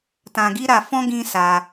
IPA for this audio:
t ã˧ ɡ i˦ ɾ a˧ f ɔ̃˦ ɡ ĩ˦ s a˧

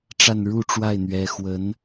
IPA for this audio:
ʈ͡ʂ a˥˧ n ɻ u˥˧ ʈ͡ʂ w a˥˩ ɪ̯ n̪ ɥ ɛ˧˥ x w ə˧˥ n

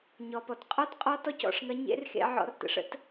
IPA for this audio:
ɲ ɔ˩ p ɔ˩ t qʼ ɔ˥ t qʼ ɔ˧˥ t ɔ˧˥ c ɔ̰˩˧ ʂ ŋ ɐ˧˥ ɲ ḛ˧˥ r x ḛ˧ ʕ ɔ̰˧ r t ə̰˧ ʂ ə̰˧˥ t

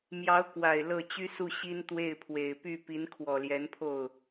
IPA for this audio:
m j ɑ˧˥ ʊ̯ k w a˨˩ ɪ̯ l ɤ˥˩ t͡ɕ y˥ s u˥˩ ɕ i˥ n t̪ w e˥˩ ɪ̯ pʰ w e˨˩ ɪ̯ p y˥˩ p i˧˥ n kʰ w ɔ˨˩ l j ɛ˧˥ n pʰ o˥˩ ʊ̯

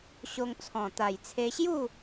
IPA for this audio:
ɕ o˧ ŋ t͡sʰ ɔ̃˨˩ t̪ a˨˩ j t͡sʰ e˧ ɕ j u˥˧

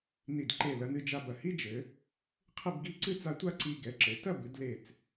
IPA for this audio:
n i˧˩ d ǃ e˧˩ l ɐ˩˧ n ɨ˧ d͡ʒ a˧ b ɐ˧˩ h i˥ d͡ʒ ɘ˩˧ | qʰ ɘ˥˧ b ɡ i˥˧ ǀ ɨ˥ t͡s a˧ tʷ a˥˧ ǀ i˧ ɡ ɛ˩˧ ǁ ɘ˩˧ t ɐ˥˧ b ɨ˩˧ d l e˧˩ t͡s

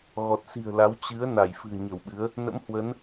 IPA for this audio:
ɣ ɔ˨˩ t̚ s i̤˨˩ ə̯ l a˨˦ w t͡ɕ ɨ˨˦ ə̯ n a˧˩ j f ɨ̤˨˩ ə̯ ɲ ə˧˩ w ɓ ɨ˨˦ ə̯ | n ə̰˧˥ m h w ə˨˦ n

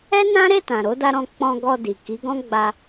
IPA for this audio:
ɛ˦ n ã˦ ɾ e˦˨ t ã˨ ɾ o˨˦ d a˧ ɾ ɔ̃˧ k͡p ɔ̃˧ ɡ ɔ˧ d i˨ k i˨˦ ɡ ɔ̃˦ ɡ͡b a˧

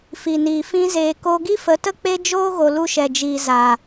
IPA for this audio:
f i˨ n iː˨ f ĩ˦ z eː˨ k o˧ ɡ i˦ f ə˨˦ t ə˦ k͡p e˦ d͡ʒ oː˦ ɣ o˨ l u˧ ʃ ɛ˨ d͡ʒ iː˨ z a˨

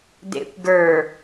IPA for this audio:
d ḛ kʷ ɡ ə˞

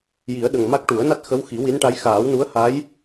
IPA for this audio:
j i˨˩˦ ə̯ ɗ ə˨˩ ŋ m a˦˥ k̚ ʈ u˨˩˦ ə̯ n a˦˥ t̚ x ə˧˥ w x i˨˩˦ w i˧˥ n ʈ a˧˥ j x aː˨˩˦ w n u˧˥ ə̯ h a˧˥ j

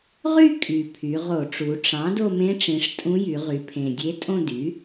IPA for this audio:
ʁ y˥˧ kʼ y˨˩ pʰ y˩˧ ʁ o˧˩˧ ʈ͡ʂ u˩˧ ʈ͡ʂ ɑ̃˩˥ d o˥˧ m ẽ˧˥ ʈ͡ʂ ĩ˩˧ ʂ tʼ ũ˧˥ j y˩˧ ʁ y˩˧ pʰ ẽ˨˩ dʲ e˧˥ tʼ õ˥˧ d y˩˥

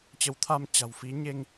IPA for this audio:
t͡ɕ ə˨˦ w t̪ʰ a˧ m t͡ɕ a̤˨˩ w f i˨˦ ɲ e˧ ŋ

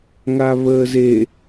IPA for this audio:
ŋ a β əː z e

